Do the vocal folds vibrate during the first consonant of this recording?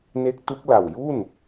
yes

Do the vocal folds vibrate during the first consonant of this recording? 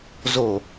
yes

